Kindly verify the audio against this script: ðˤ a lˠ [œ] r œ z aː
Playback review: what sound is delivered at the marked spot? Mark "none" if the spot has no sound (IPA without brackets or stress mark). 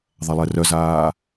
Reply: ɛ